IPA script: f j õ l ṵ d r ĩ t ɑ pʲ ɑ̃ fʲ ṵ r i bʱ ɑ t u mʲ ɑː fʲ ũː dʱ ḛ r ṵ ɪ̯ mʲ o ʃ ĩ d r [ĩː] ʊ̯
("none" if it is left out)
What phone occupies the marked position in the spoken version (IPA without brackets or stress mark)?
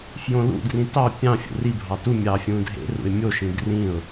ĩ